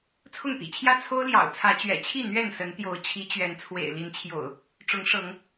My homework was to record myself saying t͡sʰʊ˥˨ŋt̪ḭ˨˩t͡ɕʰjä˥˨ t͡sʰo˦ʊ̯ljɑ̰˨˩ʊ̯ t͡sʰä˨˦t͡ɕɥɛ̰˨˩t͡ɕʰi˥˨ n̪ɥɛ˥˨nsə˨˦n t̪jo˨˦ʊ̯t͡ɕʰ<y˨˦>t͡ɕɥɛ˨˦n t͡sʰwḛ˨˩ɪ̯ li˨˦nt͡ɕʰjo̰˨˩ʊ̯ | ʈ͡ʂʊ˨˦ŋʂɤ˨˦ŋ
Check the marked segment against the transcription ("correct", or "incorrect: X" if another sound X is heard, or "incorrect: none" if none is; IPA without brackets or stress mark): incorrect: i˨˦